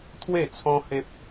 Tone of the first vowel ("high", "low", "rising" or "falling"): falling